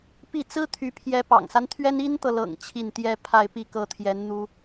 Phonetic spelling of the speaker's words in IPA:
p i˥˩ t͡s ɹ̩˥ t̪ʰ y˧˥ pʰ j ɛ˧˥ p ɑ̰˨˩ ŋ s a˦ n t̪ʰ ɥ ɛ˥ n i˥ n t̪ ɤ˨ l ɤ̰˨˩ ŋ t͡ɕʰ i˥˩ n t̪ j ɛ˥ pʰ a˥˧ ɪ̯ p i˥˩ k ɤ˥ t̪ʰ j ɛ˧˥ n n̪ u˥

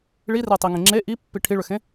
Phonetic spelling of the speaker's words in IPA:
ɭ i r e tˤ i ŋ ẽ ŋ͡ǁ e ʔ i pː i ʈʰ i ɭ ʏ x ẽ

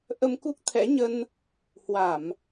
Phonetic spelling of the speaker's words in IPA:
ʔ ə˧ m k u˦˥ k̚ t̪ʰ ɛ̰˧˥ ɲ ə˧ n | h w a˧˩˨ m

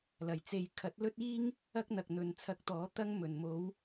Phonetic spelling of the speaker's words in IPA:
l ɐ˨˩ j t͡s e˧ j kʰ ɐ˨˥ t̚ l ɵ˥ t̚ iː˥ ŋ | ɐ˥ k̚ n̪ ɐ˨ k̚ n̪ ɵ˨ n t͡sʰ ɐ˧ k̚ t̪ ɔː˨˥ t̪ ɐ˥ ŋ m ɵ˨˩ n m o˨˧ w

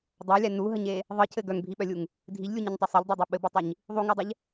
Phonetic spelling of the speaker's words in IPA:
dˤ a lʲ a n u ɦ ə ɲ e | ðˤ ɯ cʰ ɘ ɡ œ ŋ bʱ i ɓ œ lʲ u ŋ | dʱ i ʎ lʲ u ɲ ɘ ɲ tˤ o sˤ ɘ ʎ dˤ u dˤ o ɓ ɘ b ɯ tˤ i ɲ | ðˤ u ŋ ɯ dˤ ə ʎ

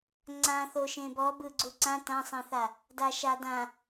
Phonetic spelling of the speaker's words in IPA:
ŋ͡ǀ ã θ o ʃ ẽ b ɔ b ɯ ɡ͡ǀ u ǀ ã t ã sˤ ẽ θ a | d a ʃ a d ã

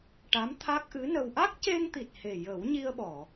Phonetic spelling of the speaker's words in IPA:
ʈ a˧˥ m t̪ʰ a˦˥ k̚ ʔ ɨ˧˥ n ə˧ w ʔ a˦˥ k̚ c e˧ ŋ t̪ i˨˩ t̚ h e˨˩ j ə˨˩˦ w ɲ i˧ ə̯ ɓ ɔ˨˩˨

